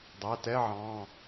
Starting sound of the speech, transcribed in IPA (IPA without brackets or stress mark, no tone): dˤ